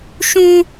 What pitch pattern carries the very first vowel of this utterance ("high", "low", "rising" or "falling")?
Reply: high